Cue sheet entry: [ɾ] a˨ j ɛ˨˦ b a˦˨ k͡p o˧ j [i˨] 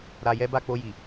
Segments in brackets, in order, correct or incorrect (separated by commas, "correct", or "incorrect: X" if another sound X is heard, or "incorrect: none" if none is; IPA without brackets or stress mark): correct, correct